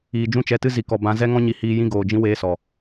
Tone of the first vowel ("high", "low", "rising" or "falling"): low